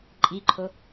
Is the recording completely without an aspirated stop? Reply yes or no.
no